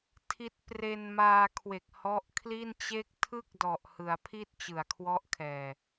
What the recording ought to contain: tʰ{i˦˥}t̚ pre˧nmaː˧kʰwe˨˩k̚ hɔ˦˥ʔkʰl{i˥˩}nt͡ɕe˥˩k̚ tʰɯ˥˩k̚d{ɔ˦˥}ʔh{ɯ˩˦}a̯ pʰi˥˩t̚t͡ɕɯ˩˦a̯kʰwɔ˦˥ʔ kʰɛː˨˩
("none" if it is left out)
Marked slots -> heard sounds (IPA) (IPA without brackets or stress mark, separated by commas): i˦˥, i˥˩, ɔ˨˩, ɯ˩˦